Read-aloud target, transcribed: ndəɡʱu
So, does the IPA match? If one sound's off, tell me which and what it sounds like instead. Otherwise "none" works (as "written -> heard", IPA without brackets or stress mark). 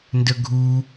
none